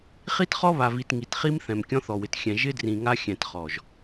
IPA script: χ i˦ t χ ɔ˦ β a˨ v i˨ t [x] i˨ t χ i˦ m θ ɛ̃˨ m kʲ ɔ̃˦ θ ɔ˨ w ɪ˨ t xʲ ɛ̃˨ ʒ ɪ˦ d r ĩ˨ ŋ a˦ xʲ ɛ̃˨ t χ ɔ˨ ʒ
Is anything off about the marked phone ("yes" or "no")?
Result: yes